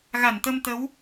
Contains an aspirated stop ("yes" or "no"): no